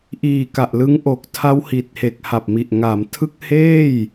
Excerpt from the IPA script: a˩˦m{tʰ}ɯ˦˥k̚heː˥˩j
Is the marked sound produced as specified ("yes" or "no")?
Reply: yes